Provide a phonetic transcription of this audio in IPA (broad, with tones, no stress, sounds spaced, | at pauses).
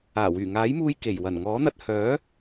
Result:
aː˨˩ w yː˨˩ ŋ aː˨˥ j m uː˧ j k e˨˩ j w ɐ˨˩ n ŋ ɔː˨˥ n̪ ɐ˧ t̚ h œː˨˥